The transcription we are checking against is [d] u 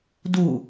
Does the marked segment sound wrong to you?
no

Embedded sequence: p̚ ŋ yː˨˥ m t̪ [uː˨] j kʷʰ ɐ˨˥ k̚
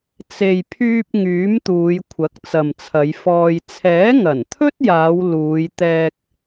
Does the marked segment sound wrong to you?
yes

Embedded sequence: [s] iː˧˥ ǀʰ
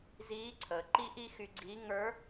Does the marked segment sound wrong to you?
yes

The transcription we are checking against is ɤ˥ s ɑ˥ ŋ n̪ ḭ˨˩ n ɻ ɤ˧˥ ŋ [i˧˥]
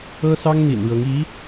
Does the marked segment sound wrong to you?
no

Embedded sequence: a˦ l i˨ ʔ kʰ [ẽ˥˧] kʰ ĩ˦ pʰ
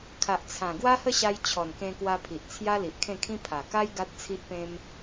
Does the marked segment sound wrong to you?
no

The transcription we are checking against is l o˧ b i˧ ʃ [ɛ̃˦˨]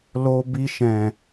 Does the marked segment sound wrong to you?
yes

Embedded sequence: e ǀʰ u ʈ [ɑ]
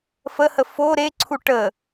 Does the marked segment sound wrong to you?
yes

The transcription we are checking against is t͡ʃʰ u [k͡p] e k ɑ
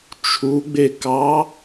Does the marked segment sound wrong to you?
yes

